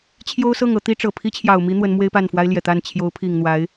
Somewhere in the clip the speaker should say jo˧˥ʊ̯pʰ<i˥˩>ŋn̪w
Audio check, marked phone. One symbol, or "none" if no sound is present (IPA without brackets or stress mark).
i˨˩